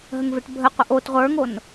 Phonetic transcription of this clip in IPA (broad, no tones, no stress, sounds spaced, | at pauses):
ɦ ə ŋ v e ʈ bʱ ə qʷ ə ʔ o t ʁʷ ə˞ ŋ o n